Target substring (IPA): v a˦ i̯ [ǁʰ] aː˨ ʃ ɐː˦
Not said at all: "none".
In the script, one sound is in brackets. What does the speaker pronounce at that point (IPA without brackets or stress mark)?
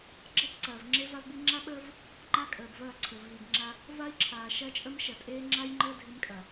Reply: ǁʰ